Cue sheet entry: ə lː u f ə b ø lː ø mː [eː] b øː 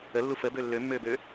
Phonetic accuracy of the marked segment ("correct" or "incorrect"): incorrect